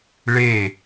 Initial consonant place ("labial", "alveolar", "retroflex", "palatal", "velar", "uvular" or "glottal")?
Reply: retroflex